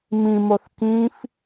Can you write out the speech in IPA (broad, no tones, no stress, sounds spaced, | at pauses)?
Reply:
m ĩ m o θ k ĩ f